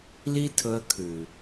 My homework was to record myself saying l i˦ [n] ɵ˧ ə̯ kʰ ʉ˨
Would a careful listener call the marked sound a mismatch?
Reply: yes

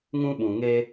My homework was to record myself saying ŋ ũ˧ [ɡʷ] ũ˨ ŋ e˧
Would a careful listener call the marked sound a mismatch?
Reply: yes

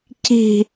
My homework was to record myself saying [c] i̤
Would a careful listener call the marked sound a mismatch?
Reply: no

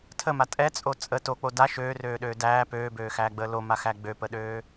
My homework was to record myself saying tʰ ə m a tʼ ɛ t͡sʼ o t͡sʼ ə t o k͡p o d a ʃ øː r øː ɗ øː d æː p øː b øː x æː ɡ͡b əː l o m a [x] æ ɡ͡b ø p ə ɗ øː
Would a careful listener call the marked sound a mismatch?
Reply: no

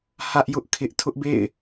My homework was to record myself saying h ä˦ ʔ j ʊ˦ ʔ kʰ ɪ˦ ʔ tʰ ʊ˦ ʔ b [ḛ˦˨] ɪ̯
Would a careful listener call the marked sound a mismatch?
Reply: no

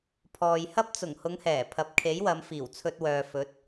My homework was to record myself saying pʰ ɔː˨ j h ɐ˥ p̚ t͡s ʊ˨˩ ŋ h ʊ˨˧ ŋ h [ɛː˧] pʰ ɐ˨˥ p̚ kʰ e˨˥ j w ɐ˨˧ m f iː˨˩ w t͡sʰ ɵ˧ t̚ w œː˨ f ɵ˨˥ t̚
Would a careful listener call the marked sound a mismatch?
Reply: yes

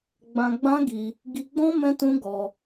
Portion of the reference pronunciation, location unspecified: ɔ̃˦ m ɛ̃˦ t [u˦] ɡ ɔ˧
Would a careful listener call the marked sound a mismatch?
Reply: yes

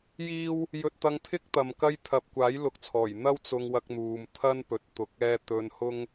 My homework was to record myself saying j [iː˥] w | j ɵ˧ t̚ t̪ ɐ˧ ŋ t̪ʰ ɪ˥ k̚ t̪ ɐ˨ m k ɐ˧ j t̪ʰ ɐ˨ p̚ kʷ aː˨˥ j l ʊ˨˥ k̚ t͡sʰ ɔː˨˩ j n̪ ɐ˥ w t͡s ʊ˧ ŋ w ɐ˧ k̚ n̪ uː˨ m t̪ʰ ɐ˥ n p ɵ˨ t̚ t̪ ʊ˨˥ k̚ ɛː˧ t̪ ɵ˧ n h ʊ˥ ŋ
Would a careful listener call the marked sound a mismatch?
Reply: no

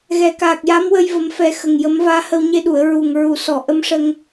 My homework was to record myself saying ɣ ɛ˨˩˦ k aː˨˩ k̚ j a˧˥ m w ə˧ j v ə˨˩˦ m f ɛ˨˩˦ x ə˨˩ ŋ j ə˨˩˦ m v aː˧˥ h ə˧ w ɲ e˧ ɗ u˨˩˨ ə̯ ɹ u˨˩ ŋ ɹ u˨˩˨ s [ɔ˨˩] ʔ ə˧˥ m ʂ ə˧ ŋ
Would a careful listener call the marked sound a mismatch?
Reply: no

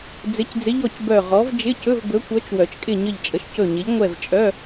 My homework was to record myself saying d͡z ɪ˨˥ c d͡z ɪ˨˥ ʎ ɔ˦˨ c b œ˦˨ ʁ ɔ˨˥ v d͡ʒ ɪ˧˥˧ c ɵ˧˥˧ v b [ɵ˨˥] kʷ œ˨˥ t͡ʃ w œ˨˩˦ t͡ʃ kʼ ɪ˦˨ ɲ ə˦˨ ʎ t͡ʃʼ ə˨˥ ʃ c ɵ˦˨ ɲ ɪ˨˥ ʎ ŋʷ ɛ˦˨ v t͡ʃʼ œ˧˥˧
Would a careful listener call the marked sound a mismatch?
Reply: no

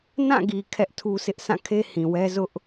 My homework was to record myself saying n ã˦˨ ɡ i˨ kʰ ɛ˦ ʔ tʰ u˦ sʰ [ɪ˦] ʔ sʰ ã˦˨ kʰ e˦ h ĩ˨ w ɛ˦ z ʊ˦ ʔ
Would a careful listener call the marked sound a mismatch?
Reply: no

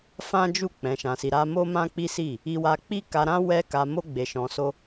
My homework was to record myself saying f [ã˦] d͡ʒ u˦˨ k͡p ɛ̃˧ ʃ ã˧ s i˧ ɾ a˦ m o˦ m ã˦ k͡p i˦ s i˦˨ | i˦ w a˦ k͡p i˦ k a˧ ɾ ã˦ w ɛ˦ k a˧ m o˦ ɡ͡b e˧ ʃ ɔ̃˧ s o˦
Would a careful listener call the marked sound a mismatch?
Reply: no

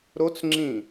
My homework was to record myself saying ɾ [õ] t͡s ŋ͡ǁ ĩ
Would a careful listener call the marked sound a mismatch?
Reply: yes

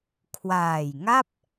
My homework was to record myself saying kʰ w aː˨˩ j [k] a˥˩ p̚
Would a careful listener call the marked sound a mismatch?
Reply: yes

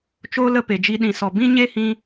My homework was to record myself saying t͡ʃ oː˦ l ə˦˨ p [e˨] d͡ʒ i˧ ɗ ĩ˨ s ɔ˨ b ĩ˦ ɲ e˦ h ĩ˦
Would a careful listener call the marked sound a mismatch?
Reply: no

